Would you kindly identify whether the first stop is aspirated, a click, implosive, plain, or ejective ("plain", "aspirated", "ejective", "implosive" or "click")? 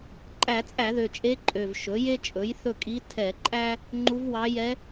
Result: click